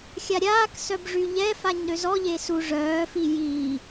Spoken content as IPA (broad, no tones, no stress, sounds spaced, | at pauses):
xʲ a ɾʲ aː k s œ b ʐ y ʎ ɛ f a ɲ ɾ ø z ɔ ʎ e s u ʐ œː f i j iː